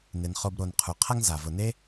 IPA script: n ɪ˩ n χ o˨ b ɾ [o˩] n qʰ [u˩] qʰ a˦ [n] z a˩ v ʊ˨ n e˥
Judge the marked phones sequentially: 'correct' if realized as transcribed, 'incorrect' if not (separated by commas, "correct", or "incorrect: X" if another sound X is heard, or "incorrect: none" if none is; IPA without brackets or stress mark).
correct, correct, incorrect: ŋ